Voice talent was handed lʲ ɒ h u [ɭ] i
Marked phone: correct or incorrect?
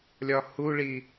correct